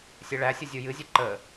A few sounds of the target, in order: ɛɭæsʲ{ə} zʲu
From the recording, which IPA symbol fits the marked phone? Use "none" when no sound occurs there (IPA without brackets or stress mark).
ɯ